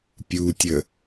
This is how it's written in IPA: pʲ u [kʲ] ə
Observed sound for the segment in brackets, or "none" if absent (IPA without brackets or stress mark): tʲ